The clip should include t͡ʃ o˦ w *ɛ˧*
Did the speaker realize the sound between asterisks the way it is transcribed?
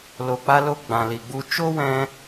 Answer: no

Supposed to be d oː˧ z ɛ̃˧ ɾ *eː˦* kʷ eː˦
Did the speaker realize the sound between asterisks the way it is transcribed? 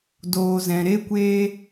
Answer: no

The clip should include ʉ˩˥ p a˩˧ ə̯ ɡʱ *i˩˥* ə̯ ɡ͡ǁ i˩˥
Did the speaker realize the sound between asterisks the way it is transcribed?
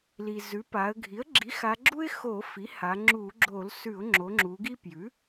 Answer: yes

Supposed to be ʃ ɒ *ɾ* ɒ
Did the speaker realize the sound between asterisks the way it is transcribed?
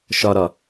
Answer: yes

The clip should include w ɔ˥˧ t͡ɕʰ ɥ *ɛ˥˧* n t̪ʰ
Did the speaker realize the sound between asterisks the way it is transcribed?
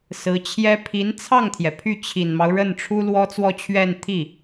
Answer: yes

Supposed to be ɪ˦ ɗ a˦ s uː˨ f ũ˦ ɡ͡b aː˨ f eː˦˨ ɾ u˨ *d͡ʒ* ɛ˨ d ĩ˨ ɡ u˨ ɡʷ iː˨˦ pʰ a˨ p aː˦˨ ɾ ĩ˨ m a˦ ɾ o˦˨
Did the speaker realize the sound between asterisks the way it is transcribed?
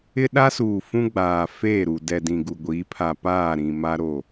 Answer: no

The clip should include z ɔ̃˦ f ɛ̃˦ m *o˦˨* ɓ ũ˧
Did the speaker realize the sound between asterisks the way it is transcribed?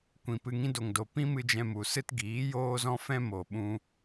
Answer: no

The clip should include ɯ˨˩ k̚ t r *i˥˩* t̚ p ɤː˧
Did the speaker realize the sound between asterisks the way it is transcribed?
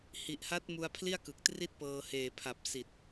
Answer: yes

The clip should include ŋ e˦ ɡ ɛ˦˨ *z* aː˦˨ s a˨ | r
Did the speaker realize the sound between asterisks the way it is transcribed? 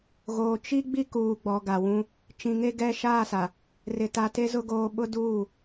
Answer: no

